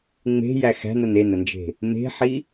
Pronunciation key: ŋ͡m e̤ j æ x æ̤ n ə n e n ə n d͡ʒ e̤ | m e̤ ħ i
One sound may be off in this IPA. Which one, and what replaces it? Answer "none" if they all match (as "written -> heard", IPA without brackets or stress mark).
none